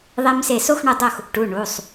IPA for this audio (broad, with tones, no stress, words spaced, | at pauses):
ðˤe˧mse˧˩ so˥˧xɳu˧˩dˤo˥˩x | ʈu˩˧˩ ɳu˩˧˩sˤ